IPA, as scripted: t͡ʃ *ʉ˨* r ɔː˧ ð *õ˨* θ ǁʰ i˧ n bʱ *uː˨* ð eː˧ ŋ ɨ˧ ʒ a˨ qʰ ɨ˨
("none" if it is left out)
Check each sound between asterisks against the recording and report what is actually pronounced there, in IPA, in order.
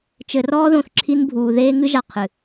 ɘ˨, õ˨, uː˨

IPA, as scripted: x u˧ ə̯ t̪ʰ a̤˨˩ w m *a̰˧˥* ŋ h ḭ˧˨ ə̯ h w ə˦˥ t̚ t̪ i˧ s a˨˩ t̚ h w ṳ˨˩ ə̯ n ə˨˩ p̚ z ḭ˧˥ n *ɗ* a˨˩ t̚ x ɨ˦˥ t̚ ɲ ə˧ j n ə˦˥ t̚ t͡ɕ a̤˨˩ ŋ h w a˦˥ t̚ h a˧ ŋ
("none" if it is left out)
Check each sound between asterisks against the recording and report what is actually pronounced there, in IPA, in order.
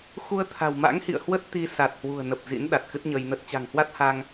a̰˧˥, ɗ

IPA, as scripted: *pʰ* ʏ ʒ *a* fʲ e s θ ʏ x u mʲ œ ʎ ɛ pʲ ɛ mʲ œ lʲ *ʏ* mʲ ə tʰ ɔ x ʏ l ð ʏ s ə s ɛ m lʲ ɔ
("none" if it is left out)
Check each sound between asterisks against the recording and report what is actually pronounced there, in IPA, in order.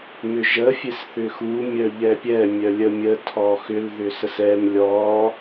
m, ə, ə

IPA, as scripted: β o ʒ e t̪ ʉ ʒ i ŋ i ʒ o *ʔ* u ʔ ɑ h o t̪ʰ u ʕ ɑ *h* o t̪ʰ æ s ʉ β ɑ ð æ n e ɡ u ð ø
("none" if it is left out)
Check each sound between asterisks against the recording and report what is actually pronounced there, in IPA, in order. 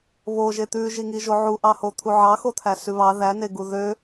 ʕ, x

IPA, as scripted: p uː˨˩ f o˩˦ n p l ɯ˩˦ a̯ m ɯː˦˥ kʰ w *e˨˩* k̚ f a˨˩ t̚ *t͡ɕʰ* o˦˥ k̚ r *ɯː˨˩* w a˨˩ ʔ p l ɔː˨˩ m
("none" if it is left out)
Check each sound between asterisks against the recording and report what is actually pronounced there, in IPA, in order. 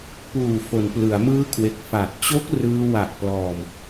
e˨˩, t͡ɕ, ɯː˧

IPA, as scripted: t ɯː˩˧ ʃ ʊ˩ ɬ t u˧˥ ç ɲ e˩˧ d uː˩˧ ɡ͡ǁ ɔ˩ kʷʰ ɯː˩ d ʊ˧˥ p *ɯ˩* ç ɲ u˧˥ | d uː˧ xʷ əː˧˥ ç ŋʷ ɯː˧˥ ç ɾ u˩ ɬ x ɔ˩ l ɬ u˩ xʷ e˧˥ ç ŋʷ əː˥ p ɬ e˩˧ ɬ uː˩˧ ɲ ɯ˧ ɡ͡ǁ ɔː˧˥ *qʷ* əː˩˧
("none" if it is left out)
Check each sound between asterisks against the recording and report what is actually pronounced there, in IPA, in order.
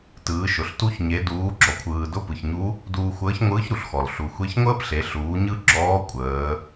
ɯ˩, kʷʼ

